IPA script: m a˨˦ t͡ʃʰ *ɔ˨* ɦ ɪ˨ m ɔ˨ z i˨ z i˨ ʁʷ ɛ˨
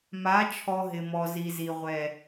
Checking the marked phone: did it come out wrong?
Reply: no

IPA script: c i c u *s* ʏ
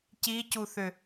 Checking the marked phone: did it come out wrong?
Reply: yes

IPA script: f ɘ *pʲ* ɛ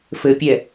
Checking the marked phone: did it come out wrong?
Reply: no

